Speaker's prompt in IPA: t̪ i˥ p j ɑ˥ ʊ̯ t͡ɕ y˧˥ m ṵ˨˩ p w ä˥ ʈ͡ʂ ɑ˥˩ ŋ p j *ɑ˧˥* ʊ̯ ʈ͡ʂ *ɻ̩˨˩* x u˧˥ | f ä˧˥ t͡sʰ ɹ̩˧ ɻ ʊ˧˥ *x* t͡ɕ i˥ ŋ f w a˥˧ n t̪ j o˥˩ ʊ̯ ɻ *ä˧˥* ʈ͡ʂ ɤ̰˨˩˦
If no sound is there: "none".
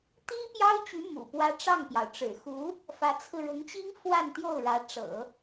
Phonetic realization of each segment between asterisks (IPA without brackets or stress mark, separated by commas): ɑ˩, ɻ̩˨˩, ŋ, ä˧˥